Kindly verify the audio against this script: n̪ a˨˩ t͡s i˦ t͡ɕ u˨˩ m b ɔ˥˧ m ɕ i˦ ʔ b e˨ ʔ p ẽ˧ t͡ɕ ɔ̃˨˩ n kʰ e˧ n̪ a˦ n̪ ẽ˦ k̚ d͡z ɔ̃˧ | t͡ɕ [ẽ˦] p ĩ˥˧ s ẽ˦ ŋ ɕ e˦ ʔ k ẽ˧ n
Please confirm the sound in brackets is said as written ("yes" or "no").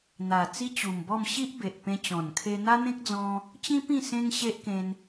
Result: no